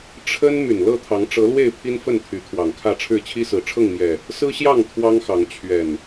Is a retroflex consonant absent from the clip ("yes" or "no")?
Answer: no